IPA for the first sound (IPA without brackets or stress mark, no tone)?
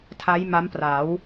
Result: tʰ